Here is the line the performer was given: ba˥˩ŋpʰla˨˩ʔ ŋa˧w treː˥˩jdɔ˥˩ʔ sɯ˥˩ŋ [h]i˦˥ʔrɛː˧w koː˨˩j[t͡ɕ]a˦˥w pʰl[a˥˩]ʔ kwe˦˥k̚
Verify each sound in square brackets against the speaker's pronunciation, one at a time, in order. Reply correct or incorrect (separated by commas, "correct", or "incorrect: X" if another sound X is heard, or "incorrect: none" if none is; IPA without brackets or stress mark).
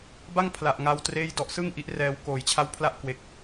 incorrect: ʔ, incorrect: t͡ɕʰ, correct